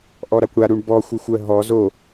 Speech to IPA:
ʔ ɔ ɾ a kʷ ɽ a ɾ u ɳ b ɔ xʷ ɜ xʷ ɜ ɦ ɔ z o

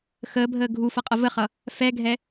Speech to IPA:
x əː bʱ əː ɡʱ u f ʌ qʼ ʌ v ə χ ʌ | f ɛ ɡʱ ɛ

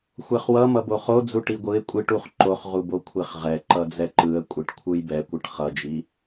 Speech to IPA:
xʷ ɛ χ w ʌ m ʌ b o χ o d͡z u ʈ i ɡʷ ɯ ɪ̯ kʷʼ i ʈ u χ ǃ o χ ʁ u b o kʷʰ e χ ʁ ɛ ǃ ʌ d͡z ɛ ǃ ɯ ə̯ kʷʼ i ʈ kʷʰ ɯ j b ɛ kʷ ɯ ʈ χ ʌ d͡ʒ i

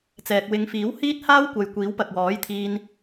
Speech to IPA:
t͡s ɛː˨ k̚ w ɪ˨˧ ŋ f iː˨˥ w h iː˥ t̚ h aː˥ w kʷ ɐ˨ j kʷ iː˨˥ w p ɐ˨ k̚ w ɔː˨˥ j t̪ʰ iː˧ n

